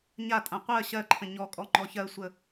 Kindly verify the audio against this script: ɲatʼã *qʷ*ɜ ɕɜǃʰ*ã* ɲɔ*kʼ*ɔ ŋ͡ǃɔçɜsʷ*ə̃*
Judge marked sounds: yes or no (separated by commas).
yes, no, yes, no